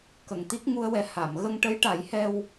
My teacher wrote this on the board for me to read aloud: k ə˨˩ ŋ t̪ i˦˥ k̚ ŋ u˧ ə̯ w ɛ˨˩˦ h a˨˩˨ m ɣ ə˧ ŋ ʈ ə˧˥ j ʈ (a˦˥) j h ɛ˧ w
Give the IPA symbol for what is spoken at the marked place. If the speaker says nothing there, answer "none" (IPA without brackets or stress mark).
a˨˩˦